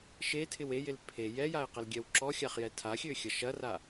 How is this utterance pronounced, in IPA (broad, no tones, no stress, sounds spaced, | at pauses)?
ʃ e tʰ ɪ w e j ɪ l pʰ e j ɛ j a ɪ̯ q ɛ l ɡʲ ɛ w ǁ ɔ xʲ a χ j ɛ tʰ a xʲ ø xʲ ɐ ʃ ɐ r a